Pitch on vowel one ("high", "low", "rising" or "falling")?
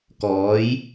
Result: rising